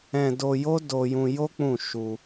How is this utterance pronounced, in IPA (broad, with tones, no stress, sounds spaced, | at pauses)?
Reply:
ɛ̃˧ d o˧ j o˦ d o˧ j ũ˧ j o˦ k͡p ũ˦˨ ʃ u˧